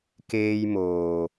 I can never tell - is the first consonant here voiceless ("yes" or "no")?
yes